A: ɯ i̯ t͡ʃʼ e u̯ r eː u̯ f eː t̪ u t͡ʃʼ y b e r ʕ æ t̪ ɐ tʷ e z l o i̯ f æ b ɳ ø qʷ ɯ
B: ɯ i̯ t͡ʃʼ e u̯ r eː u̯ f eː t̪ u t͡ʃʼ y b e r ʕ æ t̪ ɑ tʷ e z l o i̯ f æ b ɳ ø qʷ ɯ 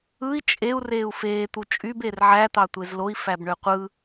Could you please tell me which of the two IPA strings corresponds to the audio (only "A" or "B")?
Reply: B